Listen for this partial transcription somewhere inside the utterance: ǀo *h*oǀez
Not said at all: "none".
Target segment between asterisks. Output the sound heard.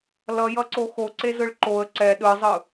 x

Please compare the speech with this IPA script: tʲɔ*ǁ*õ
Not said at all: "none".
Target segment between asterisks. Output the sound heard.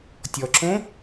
ǁ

